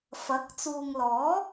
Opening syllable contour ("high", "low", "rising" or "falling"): rising